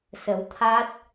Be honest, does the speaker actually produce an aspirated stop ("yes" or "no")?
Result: yes